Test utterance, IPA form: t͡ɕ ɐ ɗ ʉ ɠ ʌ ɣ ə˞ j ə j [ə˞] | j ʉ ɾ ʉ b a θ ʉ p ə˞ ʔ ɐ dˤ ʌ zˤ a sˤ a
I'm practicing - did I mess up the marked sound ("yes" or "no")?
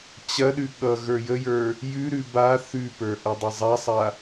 no